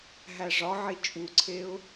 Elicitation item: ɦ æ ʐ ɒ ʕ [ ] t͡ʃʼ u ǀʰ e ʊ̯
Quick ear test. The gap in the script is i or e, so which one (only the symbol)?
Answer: i